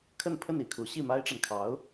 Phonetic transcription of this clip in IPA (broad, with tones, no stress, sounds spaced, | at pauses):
kʰ ə˥˧ n pʰ ə˥˧ n i˥˩ kʰ u˧˥ ɕ i˥˩ m a˥ ɪ̯ ʈ͡ʂ a˨ n kʰ ɑ˧˥ ʊ̯